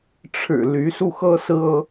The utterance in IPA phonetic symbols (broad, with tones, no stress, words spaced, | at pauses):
ʈ͡ʂʰɻ̩˨˩ ly˧˥ su˥˩xɤ˥sɹ̩˥ɤ˥